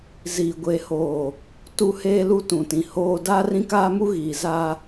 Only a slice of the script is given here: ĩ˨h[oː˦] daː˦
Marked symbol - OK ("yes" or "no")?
yes